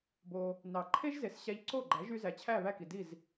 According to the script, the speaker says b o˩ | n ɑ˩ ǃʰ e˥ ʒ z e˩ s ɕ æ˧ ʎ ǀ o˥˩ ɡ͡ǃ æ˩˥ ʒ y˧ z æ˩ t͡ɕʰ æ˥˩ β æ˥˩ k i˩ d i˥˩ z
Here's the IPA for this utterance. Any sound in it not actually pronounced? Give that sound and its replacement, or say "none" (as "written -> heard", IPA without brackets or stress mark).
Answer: none